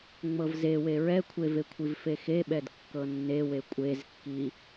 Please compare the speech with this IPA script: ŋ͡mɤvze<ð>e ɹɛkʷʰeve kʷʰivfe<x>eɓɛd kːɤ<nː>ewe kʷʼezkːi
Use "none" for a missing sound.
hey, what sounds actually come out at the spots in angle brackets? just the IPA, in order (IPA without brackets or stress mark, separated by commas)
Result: w, x, nː